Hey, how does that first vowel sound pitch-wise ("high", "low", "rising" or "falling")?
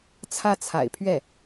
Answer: falling